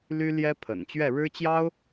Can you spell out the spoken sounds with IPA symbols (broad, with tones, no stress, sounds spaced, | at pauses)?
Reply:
l y˥ l j ɛ˥ pʰ ə̰˨˩ n t͡ɕ ɥ ɛ˥˩ ɻ ɻ̩˥ t͡ɕ j ɑ˥ ʊ̯